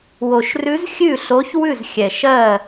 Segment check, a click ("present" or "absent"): absent